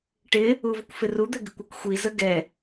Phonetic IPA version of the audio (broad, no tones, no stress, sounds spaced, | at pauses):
ʈ ɪ | u v ʊ kʷ f ɪ r u d̪ ɛ ɡ ɪ kʷ ɑ kʷ xʷ i z ə ɡ ɛ